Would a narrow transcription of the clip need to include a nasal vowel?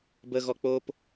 no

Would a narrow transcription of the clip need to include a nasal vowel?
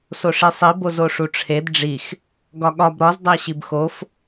no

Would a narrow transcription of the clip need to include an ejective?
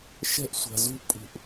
yes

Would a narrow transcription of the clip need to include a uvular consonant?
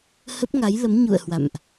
no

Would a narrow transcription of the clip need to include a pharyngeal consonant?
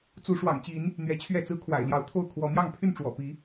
no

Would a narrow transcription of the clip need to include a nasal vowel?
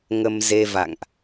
no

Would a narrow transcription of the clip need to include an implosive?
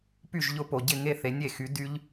no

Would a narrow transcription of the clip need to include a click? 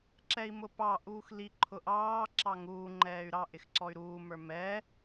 yes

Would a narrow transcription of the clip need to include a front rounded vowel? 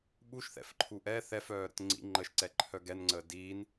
yes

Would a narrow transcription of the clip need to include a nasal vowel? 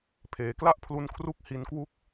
no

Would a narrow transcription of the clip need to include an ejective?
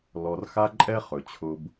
yes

